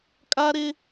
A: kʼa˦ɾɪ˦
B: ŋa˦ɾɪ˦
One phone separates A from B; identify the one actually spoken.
A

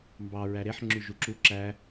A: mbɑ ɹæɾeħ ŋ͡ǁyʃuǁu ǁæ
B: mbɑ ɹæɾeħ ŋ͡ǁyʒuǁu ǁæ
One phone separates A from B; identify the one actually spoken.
B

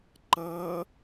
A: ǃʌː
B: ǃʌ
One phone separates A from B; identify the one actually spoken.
A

